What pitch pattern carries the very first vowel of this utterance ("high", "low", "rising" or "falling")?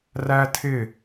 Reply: high